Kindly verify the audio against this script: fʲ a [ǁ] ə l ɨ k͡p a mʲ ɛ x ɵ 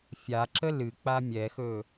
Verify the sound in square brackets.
correct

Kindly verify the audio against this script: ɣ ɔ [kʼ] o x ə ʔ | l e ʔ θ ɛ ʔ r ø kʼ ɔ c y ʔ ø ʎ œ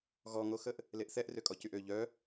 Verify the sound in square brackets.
incorrect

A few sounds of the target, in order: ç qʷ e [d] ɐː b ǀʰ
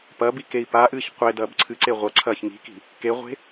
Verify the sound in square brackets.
correct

